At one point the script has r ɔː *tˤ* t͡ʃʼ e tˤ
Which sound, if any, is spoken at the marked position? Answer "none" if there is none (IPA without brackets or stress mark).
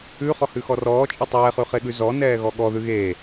none